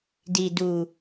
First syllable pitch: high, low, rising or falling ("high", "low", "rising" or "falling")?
low